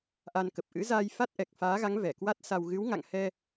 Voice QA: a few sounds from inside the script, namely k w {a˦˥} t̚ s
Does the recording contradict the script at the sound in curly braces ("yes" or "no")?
no